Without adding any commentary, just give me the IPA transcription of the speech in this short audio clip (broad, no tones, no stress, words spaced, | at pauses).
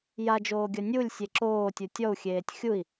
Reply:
jad͡ʒoːɡʲɐ nʲulʲsʲe ǁoːtʲu tʲɔu̯xʲeːtʲ xʲui̯